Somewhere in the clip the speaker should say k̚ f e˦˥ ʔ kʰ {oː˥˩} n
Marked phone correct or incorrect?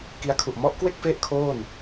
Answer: correct